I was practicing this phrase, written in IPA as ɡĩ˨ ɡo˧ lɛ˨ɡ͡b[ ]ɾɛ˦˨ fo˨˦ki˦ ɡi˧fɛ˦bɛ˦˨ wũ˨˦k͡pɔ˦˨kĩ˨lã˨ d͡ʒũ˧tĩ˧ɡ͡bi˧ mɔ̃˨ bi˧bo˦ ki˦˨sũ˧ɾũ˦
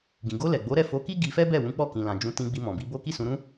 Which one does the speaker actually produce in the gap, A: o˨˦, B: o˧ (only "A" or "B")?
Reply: A